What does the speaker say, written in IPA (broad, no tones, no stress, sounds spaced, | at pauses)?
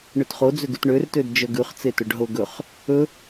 ɳ ø t χ o d͡z ø ɡ ʉ t ɳ ø r t ø d d͡ʒ œ ɡ ʉ χ t͡s e t ɵ ɖ ɦ o ɡ ɵ χ | ɵ